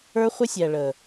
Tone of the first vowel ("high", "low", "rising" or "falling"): high